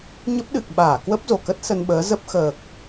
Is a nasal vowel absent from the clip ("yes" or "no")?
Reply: yes